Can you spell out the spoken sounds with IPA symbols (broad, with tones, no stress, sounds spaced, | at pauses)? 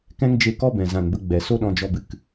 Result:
k ɛ̃˦ ŋ d͡ʒ e˧ k ɔ˦ b ɛ̃˨ z ã˨ n b ə˧ ɡ͡b ɛ˨ s o˦ ɗ ɔ̃˧ d͡ʒ ɔ˧ b ɨ˨ k